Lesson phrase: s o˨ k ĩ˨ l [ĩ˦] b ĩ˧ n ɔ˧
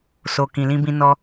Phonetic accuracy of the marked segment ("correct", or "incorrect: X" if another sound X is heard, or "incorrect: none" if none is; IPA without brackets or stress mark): incorrect: ĩ˧